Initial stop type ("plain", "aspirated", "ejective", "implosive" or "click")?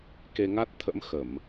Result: plain